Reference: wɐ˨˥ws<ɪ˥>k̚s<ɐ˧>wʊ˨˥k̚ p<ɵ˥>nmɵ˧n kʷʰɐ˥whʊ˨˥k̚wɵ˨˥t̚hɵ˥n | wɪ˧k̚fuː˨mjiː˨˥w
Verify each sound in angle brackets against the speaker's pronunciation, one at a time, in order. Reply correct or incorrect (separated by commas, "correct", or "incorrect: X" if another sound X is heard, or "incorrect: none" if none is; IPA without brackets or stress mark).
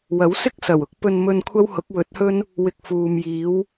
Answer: correct, incorrect: ɐ˨˩, incorrect: ɵ˧